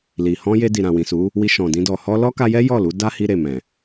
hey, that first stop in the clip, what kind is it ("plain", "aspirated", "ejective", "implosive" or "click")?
plain